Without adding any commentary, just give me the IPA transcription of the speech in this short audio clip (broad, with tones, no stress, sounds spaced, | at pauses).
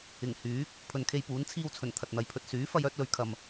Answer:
ɪ˨˩ ŋ h yː˨˥ k̚ | pʰ ɵ˨ n kʰ e˧ j p uː˨˥ n t͡sʰ iː˧ w t͡sʰ ɵ˨˩ n t̪ʰ ɐ˨ t̚ n̪ ɐ˨˧ j pʰ ɵ˨ t̚ s yː˨˥ f ɐ˧ j œː˥ t̚ l ɵ˨ ɥ kʰ ɐ˨ m